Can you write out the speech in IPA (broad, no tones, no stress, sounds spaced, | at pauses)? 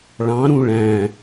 ɭ ɑ̃ ɾ ũ ɭ æ̃